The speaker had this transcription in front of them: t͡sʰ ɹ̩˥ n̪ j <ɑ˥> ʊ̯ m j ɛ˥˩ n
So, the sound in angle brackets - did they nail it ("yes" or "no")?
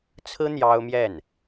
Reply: yes